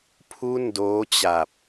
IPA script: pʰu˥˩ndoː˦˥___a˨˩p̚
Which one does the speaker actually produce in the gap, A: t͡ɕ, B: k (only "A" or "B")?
A